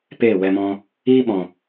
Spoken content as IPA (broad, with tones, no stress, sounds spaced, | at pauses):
p eː˦˨ w ɛ˧ m ɔ̃˧ | iː˦ ɓ ɔ̃˨